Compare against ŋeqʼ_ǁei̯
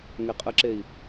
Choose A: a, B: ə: B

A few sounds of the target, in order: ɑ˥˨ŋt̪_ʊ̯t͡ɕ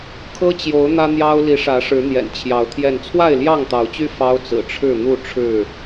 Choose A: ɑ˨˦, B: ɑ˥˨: A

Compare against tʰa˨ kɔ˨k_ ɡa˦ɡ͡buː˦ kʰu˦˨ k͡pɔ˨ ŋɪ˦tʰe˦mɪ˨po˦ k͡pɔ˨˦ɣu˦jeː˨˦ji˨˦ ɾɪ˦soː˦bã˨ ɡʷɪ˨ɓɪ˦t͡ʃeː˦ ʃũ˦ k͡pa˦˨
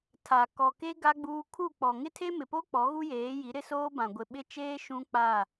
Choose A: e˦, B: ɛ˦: A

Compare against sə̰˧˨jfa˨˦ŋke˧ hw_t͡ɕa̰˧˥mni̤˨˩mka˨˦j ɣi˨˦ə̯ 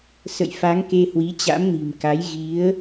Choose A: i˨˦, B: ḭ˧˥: A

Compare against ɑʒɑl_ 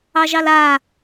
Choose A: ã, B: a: B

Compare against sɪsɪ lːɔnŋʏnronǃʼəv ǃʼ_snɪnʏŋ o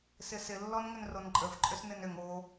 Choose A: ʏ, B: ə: A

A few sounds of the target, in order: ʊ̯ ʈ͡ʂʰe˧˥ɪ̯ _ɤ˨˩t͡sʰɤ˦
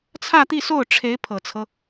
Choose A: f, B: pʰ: B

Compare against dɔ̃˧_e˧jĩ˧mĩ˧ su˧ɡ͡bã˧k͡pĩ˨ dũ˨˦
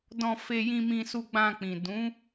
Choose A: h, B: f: B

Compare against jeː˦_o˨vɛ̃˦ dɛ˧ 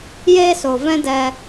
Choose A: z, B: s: B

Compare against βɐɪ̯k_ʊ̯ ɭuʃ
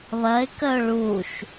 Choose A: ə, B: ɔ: A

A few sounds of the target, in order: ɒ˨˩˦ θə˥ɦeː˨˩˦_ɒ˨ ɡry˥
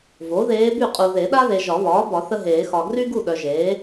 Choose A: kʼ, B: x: B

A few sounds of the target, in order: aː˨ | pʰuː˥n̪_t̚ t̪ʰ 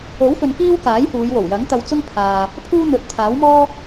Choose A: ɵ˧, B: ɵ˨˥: B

